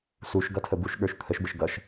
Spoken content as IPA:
s u ʃ ɡ ʌ tʰ ə b u ʃ ɠ ə˞ ʃ t̪ʰ ə ʃ b ə ʃ ɡ ʌ ʃ

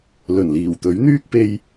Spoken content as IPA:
l ɵ˨˩ n l iː˨˩ w t̪ ɵ˨˥ ɥ n̪ yː˥ k̚ p e˧ j

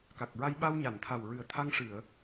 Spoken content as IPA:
k a˨˩ k̚ ɹ a˧ j ɓ a˧ w ɲ a˨˩˨ n t̪ʰ a˨˩ w ɹ ɨ˨˩ ə̯ t̪ʰ a˧ ŋ ʂ ɨ˨˩˨ ə̯

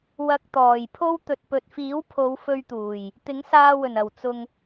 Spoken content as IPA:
w ɐ˧ k̚ t̪ ɔː˨˩ j pʰ o˥ w t̪ ɵ˨ t̚ p ɵ˨ t̚ f iː˨˥ w pʰ o˨˧ w f ɵ˧ ɥ t̪ uː˨˩ j | t̪ ɪ˨˥ ŋ s aː˧ w ɵ˨˩ n ɐ˨˩ w t͡s ʊ˧ ŋ

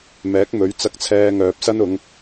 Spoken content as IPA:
m ɛː˨˥ k̚ m ɵ˨˥ ɥ t͡s ɐ˧ k̚ t͡sʰ ɛː˧ ŋ œː˨ p̚ s ɐ˥ n ʊ˨˧ ŋ

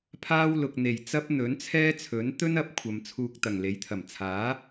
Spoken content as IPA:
pʰ aː˥ w l ʊ˨ k̚ n̪ e˨˩ j t͡s ɐ˥ p̚ n̪ ɵ˨˥ n t͡sʰ ɛː˥ t͡sʰ ɵ˨˥ n t̪ ɵ˥ n ɐ˨˥ p̚ kʷʰ ɐ˨ m t͡sʰ uː˧ k̚ t̪ ɐ˨˩ ŋ l e˨˥ j t̪ʰ ɐ˨˩ m t͡sʰ aː˨˥

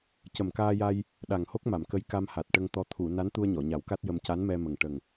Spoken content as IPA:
c ə˨˩ m k aː˧ j a˧ j | ɗ a˨˩ ŋ h o˦˥ k̚ m a˨˩˨ m k ə˧˥ j k a˧ m h a˨˩ t̚ ʈ ə˧ ŋ t̪ ɔ˧˥ t̪ʰ u˨˩˨ n a˧˥ n t̪ u˧ ə̯ ɲ ɔ˨˩˨ ɲ a˨˩˦ w k a˦˥ t̚ j ə˧ m c a˧˥ n m ɛ˧ m ə˨˩ ŋ ʈ ə˨˩ ŋ

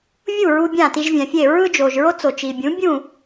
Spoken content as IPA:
vʲ u˥˩ ɹ u˧ bʲ ã˥˩ t i˧ ʒ vʲ ã˩ fʲ e˥˩ ɹ ɯ˥ d͡ʒ oː˩ ʒ ɹ o˥ t͡s o˩ t͡ʃ i˩ bʲ ũ˩˥ bʲ ũ˥˩

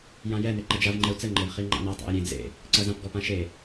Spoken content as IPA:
j ã j ɛ n e ǃ ɐ d͡ʒ a v ŋ͡ǃ ɛ u̯ t͡s ɘ ŋ͡ǃ ɘ v χ i ŋ͡ǃ a̰ n a tˤ a̰ i̯ ɾʲ ẽ d͡z ḛ | ǀ ɐ z ã p ɡ ɔ p ã ʃ e

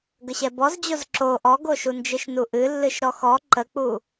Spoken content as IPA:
ɡ ə ɕ ɛ b ɔ z d͡ʑ o z ǁ o ʔ ɔ ɡ o ʃ u n d͡ʒ ɨ ʃ n u ʔ ɨ lː ɨ ʃ ɾ ɔ x ɔ ǃ ə k͡p u

